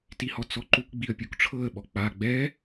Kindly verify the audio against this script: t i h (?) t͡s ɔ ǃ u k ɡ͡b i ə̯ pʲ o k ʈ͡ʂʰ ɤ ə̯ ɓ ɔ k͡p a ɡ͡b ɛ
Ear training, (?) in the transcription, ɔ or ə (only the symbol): ɔ